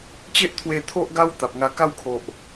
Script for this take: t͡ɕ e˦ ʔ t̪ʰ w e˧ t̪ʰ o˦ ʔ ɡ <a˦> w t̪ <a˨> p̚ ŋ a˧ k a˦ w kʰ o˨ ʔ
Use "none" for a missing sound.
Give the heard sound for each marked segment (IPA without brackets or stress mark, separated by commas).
a˦, a˨